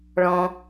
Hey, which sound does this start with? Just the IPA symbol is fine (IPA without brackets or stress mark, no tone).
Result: ɭ